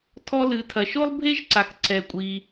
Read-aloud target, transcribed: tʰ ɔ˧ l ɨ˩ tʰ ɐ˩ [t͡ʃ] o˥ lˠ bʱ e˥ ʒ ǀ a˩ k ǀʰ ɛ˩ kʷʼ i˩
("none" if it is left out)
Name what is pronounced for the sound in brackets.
ʃ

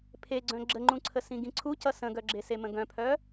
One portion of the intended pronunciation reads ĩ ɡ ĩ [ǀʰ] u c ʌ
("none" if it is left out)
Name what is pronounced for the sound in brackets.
ǀʰ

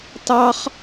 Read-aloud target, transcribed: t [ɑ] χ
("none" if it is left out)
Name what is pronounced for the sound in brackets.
ɑ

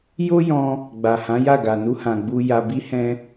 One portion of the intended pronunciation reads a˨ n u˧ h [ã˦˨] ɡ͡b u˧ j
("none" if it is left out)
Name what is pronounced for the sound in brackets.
ã˨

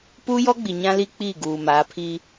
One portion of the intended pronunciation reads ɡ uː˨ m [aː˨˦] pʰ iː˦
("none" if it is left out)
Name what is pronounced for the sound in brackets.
aː˨˦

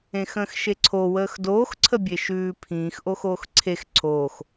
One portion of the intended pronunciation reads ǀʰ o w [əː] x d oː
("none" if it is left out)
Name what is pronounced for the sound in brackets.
əː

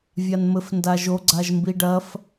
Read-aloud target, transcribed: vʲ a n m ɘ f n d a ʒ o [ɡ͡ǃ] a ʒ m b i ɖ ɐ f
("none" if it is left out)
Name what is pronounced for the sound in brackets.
ɡ͡ǀ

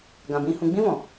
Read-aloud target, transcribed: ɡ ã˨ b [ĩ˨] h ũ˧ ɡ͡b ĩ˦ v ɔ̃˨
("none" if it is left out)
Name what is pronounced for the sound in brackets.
ĩ˧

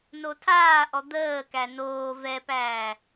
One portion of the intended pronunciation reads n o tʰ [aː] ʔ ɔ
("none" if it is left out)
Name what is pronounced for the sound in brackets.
aː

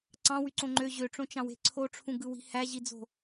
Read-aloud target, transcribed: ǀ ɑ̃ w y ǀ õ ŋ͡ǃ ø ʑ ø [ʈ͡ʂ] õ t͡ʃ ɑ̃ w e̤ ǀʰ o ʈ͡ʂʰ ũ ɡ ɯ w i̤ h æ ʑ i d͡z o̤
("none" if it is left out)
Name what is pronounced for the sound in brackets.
ʈ͡ʂ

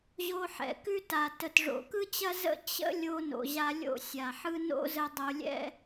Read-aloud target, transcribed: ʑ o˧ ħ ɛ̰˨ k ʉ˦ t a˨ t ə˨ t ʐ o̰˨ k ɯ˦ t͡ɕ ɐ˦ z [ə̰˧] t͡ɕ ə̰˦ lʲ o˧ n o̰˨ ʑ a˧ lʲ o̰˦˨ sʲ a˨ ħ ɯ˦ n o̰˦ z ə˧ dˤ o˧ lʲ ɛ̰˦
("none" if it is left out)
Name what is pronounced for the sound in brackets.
ə̰˦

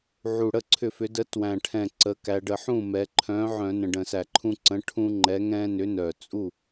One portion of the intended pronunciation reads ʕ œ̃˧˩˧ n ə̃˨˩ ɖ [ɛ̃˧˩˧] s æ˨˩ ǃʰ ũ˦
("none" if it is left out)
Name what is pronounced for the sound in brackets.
ə̃˧˩˧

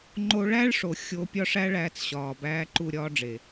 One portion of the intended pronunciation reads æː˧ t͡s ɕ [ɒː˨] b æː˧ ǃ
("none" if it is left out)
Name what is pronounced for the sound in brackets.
ɒː˨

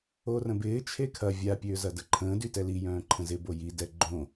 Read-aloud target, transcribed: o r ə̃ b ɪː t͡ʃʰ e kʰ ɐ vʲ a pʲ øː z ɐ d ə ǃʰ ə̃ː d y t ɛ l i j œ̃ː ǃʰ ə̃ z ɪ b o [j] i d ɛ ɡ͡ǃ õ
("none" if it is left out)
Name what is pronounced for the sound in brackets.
j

